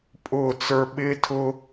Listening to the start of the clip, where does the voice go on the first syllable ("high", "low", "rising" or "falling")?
falling